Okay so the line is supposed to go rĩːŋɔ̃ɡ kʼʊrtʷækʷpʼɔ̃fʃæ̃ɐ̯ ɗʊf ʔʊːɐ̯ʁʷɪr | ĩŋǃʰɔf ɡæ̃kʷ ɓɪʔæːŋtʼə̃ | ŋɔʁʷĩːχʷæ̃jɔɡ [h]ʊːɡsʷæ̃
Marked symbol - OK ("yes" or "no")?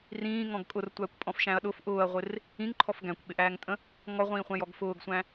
no